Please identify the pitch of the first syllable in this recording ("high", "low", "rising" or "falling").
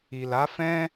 low